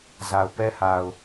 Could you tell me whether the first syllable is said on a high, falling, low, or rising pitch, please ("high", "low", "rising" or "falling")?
low